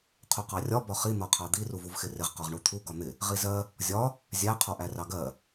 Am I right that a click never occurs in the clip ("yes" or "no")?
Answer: yes